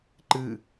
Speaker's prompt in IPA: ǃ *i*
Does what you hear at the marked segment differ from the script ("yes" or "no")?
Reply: yes